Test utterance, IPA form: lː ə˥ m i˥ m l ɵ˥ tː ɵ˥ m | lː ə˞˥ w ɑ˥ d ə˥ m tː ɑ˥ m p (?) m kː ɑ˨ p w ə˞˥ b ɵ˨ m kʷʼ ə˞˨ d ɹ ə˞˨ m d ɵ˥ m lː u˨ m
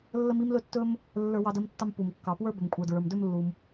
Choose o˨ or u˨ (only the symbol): u˨